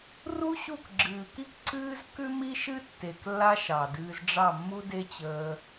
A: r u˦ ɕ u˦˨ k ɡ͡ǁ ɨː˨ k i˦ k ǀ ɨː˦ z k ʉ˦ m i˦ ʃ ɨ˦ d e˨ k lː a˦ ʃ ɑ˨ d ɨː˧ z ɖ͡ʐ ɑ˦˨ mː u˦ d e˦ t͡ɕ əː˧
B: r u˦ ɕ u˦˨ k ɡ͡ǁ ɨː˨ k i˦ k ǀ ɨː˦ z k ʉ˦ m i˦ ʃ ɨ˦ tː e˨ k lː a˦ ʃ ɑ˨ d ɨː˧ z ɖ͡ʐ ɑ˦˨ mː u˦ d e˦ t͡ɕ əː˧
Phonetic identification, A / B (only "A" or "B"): B